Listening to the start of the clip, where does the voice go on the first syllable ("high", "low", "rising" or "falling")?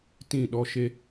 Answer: falling